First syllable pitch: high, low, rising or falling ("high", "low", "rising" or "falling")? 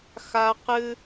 high